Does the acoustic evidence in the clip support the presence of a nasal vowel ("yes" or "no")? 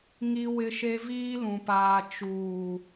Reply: yes